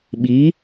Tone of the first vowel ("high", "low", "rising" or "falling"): rising